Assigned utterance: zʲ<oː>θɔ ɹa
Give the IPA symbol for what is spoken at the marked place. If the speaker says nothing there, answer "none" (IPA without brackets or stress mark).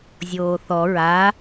oː